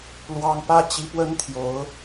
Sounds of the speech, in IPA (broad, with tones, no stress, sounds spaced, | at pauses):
l w ɑ˥ ŋ p ä˥ t͡ɕ i˧˥ p w ə˥ n t̪ʰ j o˧˥ ʊ̯